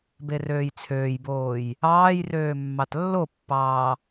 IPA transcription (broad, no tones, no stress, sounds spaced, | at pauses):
b e r øː j t͡sʰ øː j b oː j | ɑː j r øː mː ɑ t lː o pː ɑː